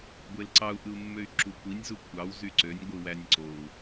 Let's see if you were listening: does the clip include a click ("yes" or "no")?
yes